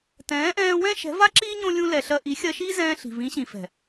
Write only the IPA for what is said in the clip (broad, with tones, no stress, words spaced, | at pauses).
tɛ̃ː˨˦ʔɛ̃ː˧wɛ̃˦ ʃɛ̤˨˦va˦ǁiː˦ ɲõ˦ lʲũ˧lɛ˨ɬɜ˧ ʔi˨˦xʲɜ˧ʃiː˦zɛ̃ː˧ ɬi̤˨vĩ˨˦ɕĩ˨fɛ̤˨